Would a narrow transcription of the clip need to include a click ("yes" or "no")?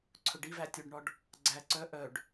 yes